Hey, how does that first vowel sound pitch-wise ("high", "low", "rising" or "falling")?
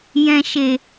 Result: low